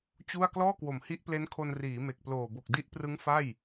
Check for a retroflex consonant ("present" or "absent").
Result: absent